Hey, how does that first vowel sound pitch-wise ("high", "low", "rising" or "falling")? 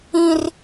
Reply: high